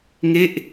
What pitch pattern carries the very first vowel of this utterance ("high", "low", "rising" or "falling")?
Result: falling